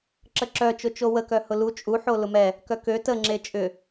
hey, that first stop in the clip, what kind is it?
click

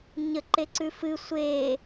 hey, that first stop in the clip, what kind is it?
click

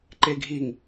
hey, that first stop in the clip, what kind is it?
click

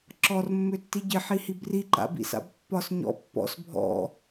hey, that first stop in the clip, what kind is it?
click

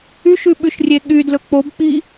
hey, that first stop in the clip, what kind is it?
implosive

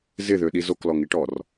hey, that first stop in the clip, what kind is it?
implosive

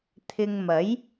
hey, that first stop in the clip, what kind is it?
aspirated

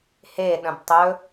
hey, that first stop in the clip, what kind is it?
implosive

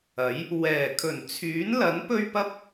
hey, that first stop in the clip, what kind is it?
aspirated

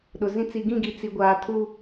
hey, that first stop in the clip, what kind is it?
implosive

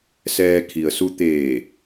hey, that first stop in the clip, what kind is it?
aspirated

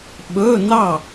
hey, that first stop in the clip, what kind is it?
implosive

